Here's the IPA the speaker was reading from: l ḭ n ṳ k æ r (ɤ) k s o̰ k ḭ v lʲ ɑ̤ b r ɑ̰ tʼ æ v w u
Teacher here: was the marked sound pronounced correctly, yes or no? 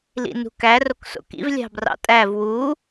no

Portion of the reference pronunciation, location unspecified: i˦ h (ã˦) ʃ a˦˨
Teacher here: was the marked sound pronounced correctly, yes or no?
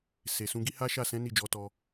no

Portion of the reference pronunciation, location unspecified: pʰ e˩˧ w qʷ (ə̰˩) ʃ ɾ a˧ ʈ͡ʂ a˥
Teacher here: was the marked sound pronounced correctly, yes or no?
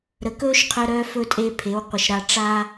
no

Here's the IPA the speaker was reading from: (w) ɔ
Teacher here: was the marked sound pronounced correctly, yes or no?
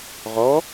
no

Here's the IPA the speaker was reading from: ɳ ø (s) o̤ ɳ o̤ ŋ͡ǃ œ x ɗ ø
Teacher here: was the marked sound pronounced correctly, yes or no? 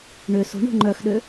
yes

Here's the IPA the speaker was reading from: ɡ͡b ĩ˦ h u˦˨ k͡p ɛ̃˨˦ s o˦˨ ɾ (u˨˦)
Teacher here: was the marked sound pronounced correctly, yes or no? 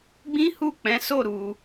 no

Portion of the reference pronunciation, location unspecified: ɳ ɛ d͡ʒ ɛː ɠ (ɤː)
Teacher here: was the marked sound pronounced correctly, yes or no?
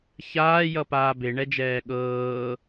yes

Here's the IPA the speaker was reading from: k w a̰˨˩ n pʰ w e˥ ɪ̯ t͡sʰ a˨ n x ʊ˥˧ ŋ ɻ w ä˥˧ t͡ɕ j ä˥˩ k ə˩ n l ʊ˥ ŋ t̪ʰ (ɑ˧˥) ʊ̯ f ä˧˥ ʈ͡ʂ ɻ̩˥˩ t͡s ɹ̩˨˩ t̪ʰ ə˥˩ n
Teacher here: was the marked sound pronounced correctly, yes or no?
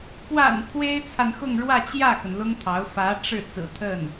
yes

